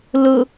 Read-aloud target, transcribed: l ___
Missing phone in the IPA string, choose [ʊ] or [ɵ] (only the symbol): ʊ